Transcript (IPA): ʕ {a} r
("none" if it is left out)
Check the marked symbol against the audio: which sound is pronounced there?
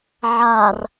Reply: a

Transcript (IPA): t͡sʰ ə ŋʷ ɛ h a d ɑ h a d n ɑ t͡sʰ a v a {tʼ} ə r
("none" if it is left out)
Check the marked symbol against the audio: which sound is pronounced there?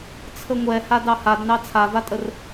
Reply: tʼ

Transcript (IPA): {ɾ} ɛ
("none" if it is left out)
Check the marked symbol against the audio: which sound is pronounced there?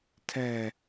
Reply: tʰ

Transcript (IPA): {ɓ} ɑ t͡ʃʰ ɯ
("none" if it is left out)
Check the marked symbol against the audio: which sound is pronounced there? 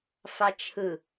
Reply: f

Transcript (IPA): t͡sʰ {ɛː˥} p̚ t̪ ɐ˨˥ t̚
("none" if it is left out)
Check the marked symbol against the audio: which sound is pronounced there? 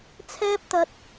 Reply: ɛː˥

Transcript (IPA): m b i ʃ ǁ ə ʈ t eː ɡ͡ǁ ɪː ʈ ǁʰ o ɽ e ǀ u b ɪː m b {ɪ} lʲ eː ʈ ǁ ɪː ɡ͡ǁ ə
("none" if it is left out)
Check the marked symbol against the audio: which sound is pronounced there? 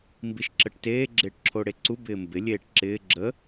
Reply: ɪ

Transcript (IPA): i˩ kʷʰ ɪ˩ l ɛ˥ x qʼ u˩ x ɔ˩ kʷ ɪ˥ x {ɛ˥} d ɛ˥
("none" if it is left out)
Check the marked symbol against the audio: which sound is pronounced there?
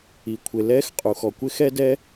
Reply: ɛ˥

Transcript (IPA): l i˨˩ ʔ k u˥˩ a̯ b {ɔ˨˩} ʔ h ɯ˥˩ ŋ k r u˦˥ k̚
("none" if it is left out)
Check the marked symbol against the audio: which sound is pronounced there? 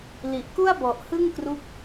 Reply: ɔ˨˩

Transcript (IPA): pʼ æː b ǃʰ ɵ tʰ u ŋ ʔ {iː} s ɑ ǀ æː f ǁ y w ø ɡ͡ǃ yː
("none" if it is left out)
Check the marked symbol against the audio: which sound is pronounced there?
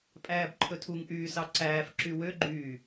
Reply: yː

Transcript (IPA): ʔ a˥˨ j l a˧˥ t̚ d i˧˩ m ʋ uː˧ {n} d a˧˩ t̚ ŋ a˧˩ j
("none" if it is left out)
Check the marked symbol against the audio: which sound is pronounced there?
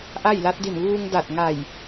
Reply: ŋ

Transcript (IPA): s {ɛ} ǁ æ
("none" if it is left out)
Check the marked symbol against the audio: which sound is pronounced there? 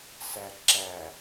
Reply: æ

